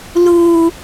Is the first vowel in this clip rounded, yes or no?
yes